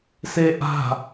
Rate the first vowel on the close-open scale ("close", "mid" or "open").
mid